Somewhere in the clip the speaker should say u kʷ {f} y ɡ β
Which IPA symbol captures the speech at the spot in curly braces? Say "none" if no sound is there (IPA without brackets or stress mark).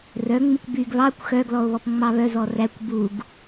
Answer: b